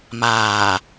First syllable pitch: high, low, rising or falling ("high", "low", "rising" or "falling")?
low